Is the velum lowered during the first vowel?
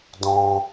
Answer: yes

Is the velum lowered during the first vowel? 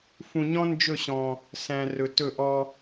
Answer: yes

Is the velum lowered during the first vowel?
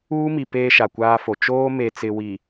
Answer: no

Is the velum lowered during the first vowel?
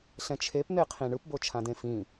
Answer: yes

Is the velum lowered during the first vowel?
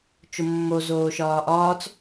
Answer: no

